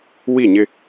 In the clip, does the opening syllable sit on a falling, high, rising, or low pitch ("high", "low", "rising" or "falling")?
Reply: falling